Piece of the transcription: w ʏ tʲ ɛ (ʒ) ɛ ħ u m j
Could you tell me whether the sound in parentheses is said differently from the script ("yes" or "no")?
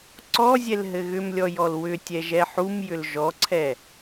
no